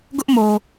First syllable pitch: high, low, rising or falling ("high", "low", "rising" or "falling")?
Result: high